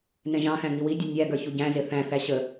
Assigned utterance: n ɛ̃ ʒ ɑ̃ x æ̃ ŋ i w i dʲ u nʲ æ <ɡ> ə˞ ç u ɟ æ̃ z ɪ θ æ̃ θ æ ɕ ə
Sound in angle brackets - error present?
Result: no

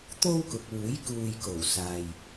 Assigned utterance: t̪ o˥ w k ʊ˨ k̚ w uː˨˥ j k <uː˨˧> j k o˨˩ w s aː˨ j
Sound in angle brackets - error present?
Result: yes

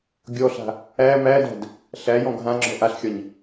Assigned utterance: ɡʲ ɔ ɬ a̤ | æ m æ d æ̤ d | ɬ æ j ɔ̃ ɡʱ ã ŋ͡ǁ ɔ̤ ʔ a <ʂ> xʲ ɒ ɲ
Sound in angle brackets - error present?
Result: yes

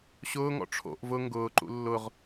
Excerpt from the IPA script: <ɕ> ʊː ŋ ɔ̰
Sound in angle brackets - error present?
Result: no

